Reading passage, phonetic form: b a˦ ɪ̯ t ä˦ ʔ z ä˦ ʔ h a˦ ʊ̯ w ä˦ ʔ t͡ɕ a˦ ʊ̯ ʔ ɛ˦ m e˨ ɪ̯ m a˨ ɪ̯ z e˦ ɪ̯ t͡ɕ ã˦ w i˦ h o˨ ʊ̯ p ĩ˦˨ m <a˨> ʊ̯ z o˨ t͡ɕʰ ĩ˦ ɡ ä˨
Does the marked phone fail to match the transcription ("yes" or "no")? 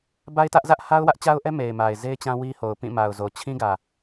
no